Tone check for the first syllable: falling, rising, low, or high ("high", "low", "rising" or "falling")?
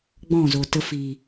falling